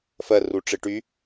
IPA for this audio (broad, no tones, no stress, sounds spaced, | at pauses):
f ɜ r u ʈ͡ʂ ɪ ʈ y